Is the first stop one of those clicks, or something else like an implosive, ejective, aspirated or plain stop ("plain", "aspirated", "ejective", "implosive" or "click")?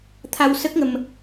aspirated